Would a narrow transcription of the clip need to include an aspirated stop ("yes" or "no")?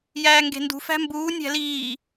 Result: no